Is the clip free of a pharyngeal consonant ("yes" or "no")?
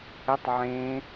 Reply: no